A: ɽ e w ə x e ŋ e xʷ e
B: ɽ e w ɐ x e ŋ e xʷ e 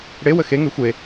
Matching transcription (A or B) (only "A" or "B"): A